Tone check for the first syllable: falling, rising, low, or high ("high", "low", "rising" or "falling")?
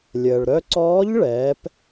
low